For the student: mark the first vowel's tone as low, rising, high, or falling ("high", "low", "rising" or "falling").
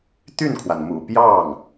falling